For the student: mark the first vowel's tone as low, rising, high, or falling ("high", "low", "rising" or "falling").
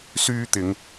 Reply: high